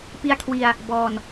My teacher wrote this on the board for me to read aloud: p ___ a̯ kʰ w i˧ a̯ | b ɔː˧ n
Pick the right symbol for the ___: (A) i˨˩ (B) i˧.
B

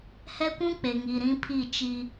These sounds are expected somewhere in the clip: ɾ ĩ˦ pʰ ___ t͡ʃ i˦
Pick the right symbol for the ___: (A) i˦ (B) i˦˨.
B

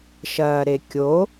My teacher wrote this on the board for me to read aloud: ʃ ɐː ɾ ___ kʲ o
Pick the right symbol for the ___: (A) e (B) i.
A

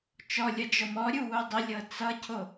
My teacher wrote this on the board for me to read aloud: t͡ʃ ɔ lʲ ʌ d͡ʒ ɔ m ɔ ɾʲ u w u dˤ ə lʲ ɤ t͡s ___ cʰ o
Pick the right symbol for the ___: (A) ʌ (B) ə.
A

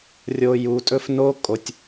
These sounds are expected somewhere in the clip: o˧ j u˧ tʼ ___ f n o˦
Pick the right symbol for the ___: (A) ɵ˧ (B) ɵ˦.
B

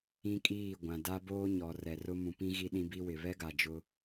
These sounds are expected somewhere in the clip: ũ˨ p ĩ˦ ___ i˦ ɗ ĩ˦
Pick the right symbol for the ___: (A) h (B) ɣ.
B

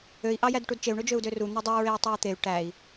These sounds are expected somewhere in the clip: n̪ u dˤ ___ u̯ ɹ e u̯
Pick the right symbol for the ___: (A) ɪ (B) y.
B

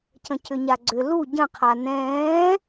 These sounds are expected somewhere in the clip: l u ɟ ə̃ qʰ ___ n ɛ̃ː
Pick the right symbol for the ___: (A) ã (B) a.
B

